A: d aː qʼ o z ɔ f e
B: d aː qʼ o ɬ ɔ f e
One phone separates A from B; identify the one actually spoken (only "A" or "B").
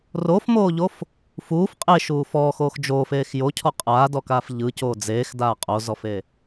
A